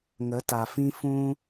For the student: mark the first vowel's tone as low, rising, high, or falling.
rising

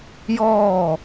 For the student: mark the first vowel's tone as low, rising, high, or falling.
falling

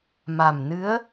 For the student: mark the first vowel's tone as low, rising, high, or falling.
low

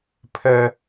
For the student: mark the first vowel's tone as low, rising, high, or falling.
high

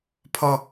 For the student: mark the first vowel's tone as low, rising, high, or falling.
high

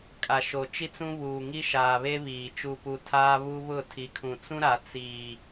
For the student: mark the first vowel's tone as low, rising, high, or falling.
low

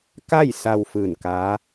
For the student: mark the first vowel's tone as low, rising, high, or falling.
falling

